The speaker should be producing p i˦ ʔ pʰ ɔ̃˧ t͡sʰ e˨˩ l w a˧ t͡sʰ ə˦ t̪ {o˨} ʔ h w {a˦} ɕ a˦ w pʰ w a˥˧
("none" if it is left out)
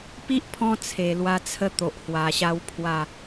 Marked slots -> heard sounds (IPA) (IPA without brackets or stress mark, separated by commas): o˨, a˨˩